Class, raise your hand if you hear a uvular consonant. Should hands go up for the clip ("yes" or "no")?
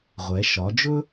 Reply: yes